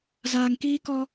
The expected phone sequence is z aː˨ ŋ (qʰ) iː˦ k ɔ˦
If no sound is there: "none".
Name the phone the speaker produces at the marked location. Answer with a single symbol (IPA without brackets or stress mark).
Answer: k